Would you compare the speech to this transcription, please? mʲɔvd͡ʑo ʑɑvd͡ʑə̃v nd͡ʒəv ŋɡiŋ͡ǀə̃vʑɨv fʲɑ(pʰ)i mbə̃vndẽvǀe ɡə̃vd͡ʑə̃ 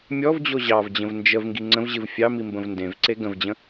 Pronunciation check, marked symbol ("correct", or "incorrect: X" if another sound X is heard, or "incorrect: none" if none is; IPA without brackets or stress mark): incorrect: m